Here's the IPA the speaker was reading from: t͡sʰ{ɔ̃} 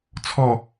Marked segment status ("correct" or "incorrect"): incorrect